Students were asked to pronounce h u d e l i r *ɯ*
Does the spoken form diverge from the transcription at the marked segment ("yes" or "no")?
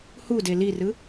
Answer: no